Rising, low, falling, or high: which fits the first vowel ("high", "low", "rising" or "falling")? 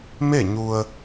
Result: falling